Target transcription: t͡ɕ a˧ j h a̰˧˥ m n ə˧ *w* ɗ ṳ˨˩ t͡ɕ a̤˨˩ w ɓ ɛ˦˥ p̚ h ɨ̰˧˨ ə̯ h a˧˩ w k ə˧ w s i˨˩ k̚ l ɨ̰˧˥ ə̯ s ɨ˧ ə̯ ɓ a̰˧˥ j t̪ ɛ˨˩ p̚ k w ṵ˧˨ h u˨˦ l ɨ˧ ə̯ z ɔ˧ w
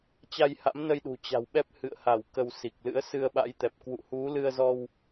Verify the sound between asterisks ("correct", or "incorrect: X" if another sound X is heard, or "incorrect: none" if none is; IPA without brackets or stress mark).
incorrect: j